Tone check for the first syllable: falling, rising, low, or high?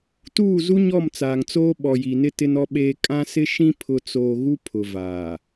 falling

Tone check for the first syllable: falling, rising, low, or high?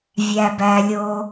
low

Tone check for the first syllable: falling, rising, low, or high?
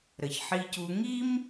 low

